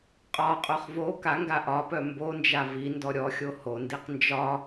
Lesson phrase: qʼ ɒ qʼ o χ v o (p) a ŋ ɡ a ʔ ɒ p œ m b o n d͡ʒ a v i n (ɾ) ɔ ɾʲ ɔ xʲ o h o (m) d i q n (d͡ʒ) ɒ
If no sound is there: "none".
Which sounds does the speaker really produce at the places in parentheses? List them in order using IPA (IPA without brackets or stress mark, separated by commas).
k, d, n, d͡ʒ